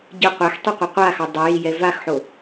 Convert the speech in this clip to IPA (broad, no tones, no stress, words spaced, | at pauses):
ɟə qʷæxtˤyqʷa qʷaxɑ dˤəjijɛ vaxħo